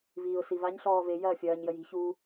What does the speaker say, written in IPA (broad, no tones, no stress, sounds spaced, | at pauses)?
v iː ʊ̯ s i v a ɲ ɬ ɔː v e j ɐː fʲ ɐː ɲ j ə j i̤ ç u